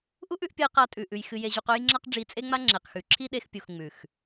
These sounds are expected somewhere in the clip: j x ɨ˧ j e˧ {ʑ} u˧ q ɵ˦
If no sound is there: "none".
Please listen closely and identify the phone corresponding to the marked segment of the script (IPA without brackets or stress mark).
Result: ʑ